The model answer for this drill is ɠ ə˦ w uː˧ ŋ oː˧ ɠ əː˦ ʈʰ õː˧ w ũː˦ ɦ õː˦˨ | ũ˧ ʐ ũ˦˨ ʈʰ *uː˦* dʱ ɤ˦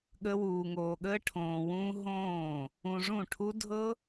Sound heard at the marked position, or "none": u˦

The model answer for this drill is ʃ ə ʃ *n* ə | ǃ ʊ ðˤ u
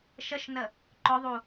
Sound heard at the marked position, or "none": n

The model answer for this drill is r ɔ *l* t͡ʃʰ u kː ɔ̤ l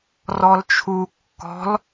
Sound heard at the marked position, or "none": l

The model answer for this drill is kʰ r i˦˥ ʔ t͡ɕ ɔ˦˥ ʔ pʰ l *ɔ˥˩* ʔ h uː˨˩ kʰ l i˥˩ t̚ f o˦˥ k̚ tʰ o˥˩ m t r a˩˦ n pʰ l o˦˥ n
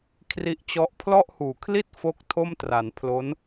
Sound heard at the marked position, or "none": ɔ˥˩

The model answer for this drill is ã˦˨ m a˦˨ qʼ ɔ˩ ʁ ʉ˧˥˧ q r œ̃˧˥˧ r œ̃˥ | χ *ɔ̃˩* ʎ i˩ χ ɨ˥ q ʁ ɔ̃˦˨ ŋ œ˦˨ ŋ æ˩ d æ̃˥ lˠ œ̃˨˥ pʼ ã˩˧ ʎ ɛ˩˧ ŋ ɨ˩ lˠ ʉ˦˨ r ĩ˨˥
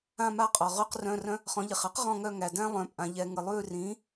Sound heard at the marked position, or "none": ɔ̃˨˥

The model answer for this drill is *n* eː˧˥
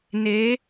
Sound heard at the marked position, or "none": n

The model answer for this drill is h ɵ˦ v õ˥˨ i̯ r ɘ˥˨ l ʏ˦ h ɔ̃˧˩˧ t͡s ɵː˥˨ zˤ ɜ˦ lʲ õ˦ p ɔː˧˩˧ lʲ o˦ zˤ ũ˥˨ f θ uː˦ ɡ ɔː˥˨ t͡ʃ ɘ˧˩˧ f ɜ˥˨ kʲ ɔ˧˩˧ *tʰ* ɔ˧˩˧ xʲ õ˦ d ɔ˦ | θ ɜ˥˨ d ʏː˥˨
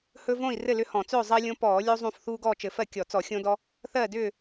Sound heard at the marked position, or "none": t͡s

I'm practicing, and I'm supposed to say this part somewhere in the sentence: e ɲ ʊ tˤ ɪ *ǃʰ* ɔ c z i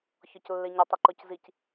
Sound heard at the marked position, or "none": ǃ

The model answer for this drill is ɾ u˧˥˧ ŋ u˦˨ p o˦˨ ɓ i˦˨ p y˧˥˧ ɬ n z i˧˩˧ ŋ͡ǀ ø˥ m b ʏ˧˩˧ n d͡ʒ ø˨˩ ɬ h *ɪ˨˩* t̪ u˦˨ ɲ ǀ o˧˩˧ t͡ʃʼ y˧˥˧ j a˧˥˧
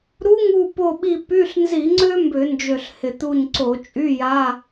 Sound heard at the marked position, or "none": ɪ˨˩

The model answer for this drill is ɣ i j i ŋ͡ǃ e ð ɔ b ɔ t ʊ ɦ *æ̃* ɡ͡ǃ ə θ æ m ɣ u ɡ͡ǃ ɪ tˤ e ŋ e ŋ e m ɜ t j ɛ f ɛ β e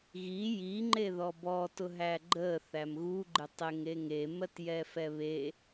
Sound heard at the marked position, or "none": æ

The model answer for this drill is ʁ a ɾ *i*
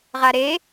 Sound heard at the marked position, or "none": e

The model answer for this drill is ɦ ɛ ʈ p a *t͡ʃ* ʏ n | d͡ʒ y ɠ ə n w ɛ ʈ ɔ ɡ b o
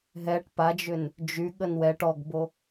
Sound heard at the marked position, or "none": d͡ʒ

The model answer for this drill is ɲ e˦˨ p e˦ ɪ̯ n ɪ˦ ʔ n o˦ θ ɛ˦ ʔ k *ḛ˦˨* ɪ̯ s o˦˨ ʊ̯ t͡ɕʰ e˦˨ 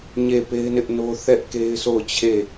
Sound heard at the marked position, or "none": e˦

